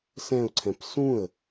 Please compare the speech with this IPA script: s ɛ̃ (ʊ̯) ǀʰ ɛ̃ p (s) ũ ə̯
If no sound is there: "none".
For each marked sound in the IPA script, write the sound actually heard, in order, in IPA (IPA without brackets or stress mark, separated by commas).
ʊ̯, s